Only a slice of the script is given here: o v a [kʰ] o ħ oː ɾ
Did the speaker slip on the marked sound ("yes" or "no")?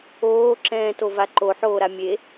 yes